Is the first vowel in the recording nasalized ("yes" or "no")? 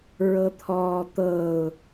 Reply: no